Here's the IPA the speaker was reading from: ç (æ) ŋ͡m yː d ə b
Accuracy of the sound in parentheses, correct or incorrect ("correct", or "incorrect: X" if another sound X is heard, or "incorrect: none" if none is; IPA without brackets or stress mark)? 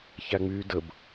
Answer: correct